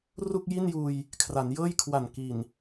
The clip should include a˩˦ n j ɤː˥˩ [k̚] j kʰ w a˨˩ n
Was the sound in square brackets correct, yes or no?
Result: no